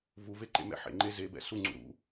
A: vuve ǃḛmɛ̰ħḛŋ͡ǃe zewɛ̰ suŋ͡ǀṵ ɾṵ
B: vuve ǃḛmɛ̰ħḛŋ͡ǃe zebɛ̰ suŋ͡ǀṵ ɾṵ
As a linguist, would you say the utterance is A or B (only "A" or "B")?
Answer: B